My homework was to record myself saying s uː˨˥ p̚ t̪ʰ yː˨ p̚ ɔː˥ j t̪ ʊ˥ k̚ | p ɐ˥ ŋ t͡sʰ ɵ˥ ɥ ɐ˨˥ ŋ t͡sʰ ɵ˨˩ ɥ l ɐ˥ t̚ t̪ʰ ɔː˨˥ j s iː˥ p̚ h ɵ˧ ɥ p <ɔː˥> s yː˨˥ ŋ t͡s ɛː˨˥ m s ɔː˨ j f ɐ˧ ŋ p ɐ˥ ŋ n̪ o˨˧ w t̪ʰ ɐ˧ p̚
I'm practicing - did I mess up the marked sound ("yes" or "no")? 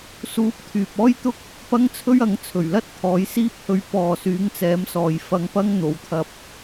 yes